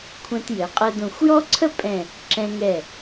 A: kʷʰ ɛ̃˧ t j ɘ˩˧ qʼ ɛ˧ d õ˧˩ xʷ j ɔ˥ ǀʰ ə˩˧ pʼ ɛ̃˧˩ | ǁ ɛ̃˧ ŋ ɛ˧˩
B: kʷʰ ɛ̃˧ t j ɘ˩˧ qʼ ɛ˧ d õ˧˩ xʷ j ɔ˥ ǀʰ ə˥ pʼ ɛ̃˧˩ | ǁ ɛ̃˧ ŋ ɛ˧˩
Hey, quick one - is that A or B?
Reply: B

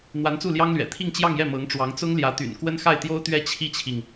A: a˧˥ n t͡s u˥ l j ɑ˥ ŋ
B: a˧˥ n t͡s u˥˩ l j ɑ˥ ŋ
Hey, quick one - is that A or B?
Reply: B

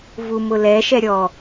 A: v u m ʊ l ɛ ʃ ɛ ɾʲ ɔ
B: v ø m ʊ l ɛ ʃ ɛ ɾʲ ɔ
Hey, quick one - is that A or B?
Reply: A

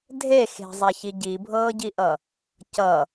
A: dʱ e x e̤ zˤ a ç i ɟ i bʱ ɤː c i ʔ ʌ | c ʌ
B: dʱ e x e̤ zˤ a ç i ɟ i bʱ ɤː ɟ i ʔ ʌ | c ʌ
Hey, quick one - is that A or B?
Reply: B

